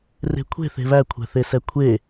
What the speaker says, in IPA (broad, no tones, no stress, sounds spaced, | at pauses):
r e̤ kʷʰ e̤ θ e̤ β æ kʷʰ ɛ̤ θ e s ɛ kʷʰ e